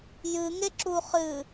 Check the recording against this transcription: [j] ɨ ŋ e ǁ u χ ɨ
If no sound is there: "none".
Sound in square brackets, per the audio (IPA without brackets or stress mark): j